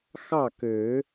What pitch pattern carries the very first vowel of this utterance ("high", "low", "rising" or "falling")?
falling